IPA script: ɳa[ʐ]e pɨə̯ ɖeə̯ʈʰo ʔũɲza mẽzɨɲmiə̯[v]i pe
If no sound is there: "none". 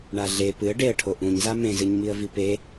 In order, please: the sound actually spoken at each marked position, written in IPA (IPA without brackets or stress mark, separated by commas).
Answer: ɮ, v